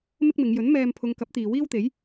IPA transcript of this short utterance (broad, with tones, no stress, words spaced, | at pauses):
mɪ˥k̚mɪ˨˧ŋ jɵ˨˥n mɛː˧mpʰʊ˨˧ŋ kɐ˨˥p̚t̪iː˨ wiː˥wt̪e˨˥j